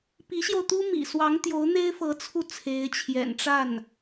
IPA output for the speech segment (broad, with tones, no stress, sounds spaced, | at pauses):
p i˧˥ ɕ j o˧ ʊ̯ t̪ u˥ m ḭ˨˩ s w ɑ˧˥ ŋ t̪ j o˧˥ ʊ̯ n̪ e˥ ɪ̯ f ɤ˧˥ t͡sʰ u˧ t͡sʰ e˧˥ ɪ̯ t͡ɕʰ j ɛ̰˨˩ n ʈ͡ʂ a˥˩ n